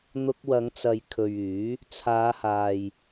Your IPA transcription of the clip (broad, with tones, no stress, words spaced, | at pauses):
n̪ʊ˧k̚wɐ˨˧ŋt͡sɐ˨j kʰɵ˨ɥyː˨˥ | t͡sʰaː˨˧haː˨j